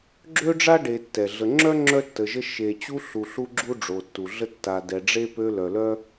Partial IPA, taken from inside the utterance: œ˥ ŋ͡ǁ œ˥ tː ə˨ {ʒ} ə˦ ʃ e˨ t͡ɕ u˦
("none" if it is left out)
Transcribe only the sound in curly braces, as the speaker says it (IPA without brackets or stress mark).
ʒ